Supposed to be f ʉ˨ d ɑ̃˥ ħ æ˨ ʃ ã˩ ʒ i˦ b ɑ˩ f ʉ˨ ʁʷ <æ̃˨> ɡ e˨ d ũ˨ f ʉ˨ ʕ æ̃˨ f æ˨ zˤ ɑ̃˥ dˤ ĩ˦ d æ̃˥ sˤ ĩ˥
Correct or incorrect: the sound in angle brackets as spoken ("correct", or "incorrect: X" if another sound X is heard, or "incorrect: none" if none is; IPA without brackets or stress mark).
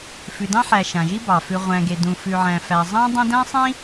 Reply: correct